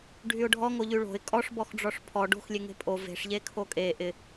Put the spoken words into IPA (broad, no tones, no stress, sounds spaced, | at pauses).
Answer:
ɖʱ y ʊ̯ ɖʱ ɔ ŋ o ʎ y ɭ o̤ ɪ̯ kʼ ɔ ʂ b ɔ x ɖ͡ʐ ɔ ʂ pʰ ɔ ɖ o̤ x lʲ e ŋ e̤ pʼ o v e̤ ʂ ʎ e kʰ o kʼ e ʔ ɪ